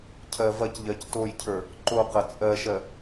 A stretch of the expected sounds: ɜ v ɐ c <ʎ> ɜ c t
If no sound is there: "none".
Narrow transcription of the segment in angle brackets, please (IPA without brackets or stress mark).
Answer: ʎ